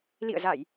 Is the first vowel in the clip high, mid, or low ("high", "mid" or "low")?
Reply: high